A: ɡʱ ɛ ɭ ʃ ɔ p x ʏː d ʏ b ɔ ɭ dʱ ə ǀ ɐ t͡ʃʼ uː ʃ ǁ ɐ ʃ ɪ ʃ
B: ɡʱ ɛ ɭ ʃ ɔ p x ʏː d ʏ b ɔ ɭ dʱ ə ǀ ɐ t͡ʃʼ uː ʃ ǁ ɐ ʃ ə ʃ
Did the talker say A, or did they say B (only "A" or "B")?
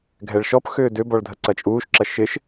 A